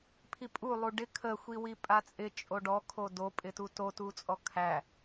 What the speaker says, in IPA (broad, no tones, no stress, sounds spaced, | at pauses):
pʰ i pʼ u lˠ u ɖ ɪ kʰ ə xʷ i w i pʼ a t͡sʼ ɪ t͡ʃʼ o ɖ ɔ kʰ o d o pʼ ɪ t u t o t u t͡sʼ ɔ kʰ æ